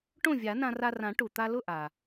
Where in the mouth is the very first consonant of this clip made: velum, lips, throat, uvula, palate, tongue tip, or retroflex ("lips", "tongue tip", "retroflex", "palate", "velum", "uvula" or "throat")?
retroflex